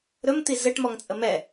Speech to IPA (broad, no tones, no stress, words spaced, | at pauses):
ɾɵmt̪i zɘʈmɔŋt͡sʼə mɛ